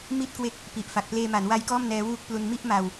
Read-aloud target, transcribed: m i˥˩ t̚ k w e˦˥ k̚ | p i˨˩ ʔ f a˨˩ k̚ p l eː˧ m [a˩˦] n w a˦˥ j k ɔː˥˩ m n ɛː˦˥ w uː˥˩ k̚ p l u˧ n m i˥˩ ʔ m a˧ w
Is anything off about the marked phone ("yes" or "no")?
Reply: no